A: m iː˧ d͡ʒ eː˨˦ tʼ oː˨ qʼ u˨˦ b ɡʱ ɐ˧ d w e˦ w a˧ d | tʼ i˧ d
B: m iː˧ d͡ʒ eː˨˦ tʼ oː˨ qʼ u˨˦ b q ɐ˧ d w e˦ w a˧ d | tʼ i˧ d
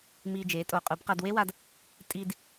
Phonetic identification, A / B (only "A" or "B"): B